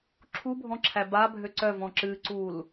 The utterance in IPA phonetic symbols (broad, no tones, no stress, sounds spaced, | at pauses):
ǁʰ u bʱ ɔ̃ ǁʰ æ b a bʱ ø ǀ œ v ɔ̃ ǁ ɨ ǀ u l